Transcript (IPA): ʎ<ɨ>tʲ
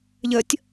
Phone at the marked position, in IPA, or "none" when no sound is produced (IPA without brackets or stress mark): ə